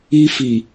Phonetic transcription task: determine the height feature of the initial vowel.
high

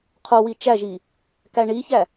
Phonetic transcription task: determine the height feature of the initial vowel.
mid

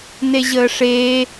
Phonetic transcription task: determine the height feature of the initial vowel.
mid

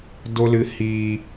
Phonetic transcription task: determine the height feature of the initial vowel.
mid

